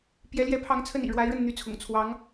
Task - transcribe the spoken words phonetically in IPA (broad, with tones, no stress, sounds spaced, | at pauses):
p j ɛ˧˥ l j ɛ˧˥ pʰ ɑ˧˥ ŋ t͡sʰ ə˥˩ n ḭ˨˩ ɻ w a˧˥ ɪ̯ ɻ ə˥˩ n n̪ y˧˥ t͡sʰ ʊ̰˨˩ ŋ t͡sʰ w ɑ˧˥ ŋ